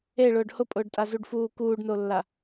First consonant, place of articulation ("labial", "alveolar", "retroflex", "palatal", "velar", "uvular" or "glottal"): retroflex